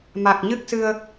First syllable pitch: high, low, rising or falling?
low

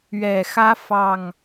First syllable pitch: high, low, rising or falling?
low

